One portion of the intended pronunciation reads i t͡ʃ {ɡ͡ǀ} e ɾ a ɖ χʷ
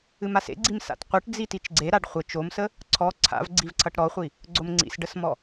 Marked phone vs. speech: correct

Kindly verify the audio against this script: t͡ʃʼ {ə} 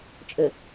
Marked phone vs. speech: correct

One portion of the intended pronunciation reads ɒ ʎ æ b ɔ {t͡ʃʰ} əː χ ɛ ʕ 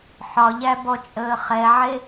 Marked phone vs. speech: incorrect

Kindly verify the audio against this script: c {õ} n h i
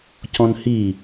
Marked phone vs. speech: incorrect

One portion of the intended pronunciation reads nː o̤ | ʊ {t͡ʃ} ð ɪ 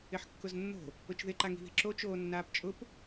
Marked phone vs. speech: correct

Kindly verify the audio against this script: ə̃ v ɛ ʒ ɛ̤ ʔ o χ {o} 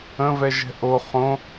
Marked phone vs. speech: incorrect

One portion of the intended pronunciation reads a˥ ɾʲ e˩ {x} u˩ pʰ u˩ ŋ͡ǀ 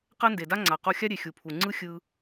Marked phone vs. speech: incorrect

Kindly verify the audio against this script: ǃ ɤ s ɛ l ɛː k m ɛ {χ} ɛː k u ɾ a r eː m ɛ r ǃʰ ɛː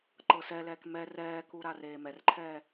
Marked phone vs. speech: incorrect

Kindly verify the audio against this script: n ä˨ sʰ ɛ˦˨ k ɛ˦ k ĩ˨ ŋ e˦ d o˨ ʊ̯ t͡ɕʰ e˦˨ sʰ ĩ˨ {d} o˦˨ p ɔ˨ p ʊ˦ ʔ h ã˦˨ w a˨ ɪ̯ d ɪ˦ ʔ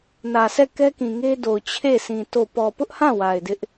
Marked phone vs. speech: incorrect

